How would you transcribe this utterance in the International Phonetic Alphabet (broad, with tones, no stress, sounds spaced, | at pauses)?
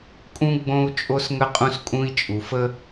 kʼ ũ˦ ɡ͡b õ˦ u̯ t͡ʃʼ o˦ s ŋ ə˦ qʼ ũ˦ s kʼ ũ˦ i̯ t͡ʃʼ u˨ f ə˦